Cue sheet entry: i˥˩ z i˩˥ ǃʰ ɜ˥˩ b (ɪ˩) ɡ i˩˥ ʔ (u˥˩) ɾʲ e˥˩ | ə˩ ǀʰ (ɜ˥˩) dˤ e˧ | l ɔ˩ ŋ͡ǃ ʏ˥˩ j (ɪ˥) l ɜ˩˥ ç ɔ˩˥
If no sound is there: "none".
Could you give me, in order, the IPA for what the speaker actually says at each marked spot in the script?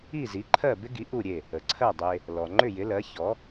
ɪ˥, u˥˩, ɜ˥˩, ɪ˩˥

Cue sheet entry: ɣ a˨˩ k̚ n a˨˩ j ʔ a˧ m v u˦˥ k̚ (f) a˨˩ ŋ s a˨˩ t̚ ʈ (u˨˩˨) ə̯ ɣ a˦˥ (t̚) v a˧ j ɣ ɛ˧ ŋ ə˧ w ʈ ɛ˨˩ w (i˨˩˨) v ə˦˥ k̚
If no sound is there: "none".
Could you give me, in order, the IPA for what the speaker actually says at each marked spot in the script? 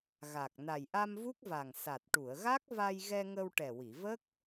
v, u˨˩˨, k̚, i˨˩˨

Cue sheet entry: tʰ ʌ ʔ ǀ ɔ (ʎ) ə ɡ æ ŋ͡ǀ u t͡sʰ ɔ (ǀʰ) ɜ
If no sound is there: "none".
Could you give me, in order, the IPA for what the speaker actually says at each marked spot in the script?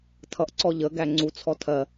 ʎ, tʰ

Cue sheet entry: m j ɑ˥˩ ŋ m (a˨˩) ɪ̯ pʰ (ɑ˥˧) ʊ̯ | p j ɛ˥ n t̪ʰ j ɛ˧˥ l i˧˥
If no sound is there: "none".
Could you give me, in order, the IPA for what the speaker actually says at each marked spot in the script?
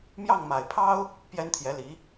a˨˩, ɑ˥

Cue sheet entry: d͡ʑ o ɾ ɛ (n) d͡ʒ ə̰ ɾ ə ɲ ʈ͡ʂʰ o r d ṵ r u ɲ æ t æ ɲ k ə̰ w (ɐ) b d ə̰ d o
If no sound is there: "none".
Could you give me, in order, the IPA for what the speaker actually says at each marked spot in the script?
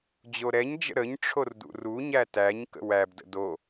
ɲ, æ

